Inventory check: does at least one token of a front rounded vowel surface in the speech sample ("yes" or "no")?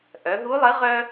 yes